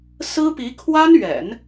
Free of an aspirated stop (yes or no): no